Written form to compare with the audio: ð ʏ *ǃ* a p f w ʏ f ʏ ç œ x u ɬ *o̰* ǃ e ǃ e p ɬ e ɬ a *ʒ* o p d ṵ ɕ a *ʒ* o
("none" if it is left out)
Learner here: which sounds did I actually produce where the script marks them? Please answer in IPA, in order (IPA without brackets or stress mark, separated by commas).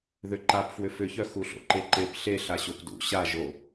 ǃ, o̰, ɕ, ʒ